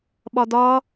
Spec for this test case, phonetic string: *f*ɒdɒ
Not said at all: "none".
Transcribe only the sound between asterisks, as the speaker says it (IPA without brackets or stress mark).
ɓ